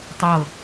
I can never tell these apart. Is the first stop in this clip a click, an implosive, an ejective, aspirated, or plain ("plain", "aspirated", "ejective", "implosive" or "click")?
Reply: plain